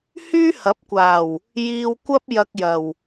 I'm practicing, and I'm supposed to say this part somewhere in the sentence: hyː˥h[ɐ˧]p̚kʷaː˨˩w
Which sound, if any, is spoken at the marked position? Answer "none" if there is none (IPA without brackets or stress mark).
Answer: ɐ˨˥